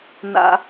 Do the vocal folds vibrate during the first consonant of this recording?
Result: yes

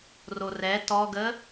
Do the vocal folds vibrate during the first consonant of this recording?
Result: yes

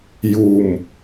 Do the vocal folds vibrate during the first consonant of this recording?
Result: yes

